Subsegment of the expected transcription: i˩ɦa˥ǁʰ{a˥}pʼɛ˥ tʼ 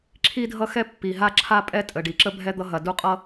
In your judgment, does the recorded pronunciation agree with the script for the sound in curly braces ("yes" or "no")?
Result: yes